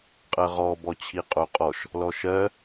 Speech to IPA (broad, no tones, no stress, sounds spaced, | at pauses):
qʼ ɜ ʁ ɔ b ɔ t͡ɕʰ i qʼ o qʼ ɔ ʃ | l ɔ ʃ ɜ